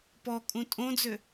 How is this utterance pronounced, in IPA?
p ɔ kʼ ũ tʼ õ d͡z ø

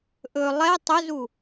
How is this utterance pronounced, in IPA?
ʔ ɵ lˠ ɛ tˤ ɵ z u

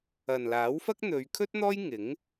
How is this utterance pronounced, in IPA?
ɐ˨ n l aː˨˥ w f ɐ˥ k̚ n̪ ɵ˨˧ ɥ kʰ ɵ˥ t̚ n̪ ɔː˥ j ŋ ɪ˨˥ ŋ

